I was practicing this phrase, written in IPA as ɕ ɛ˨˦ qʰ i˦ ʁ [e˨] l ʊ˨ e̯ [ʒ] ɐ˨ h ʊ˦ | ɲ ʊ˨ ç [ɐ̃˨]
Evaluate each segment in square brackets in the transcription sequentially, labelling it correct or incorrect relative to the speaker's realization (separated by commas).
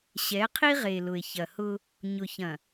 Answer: correct, incorrect, correct